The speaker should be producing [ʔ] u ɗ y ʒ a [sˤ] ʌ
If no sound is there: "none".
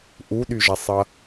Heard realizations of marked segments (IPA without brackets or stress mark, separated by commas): ʔ, sˤ